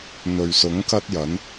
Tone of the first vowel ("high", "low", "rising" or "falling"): low